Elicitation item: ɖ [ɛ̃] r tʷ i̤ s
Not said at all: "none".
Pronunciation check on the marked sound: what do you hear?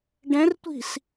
ɛ̃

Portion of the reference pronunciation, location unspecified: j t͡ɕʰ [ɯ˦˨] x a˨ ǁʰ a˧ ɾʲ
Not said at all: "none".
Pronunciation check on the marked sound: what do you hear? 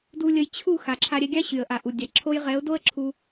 u˦˨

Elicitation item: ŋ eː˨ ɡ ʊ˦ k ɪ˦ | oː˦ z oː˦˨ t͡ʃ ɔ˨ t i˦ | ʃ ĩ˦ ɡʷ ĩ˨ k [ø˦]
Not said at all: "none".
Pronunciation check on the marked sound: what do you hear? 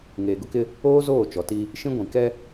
ɛ˦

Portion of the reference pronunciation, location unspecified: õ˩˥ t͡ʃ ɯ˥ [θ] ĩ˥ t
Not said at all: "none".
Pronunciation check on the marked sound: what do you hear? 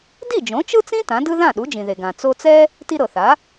t͡s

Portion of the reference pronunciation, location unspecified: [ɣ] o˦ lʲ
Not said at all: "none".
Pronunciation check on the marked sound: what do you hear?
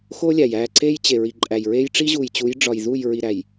x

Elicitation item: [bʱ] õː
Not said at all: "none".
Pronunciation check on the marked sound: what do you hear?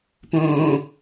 p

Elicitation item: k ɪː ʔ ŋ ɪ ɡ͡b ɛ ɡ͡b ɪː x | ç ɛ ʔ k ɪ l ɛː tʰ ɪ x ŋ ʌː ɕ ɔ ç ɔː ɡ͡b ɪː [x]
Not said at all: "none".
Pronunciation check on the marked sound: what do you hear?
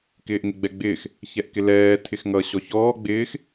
x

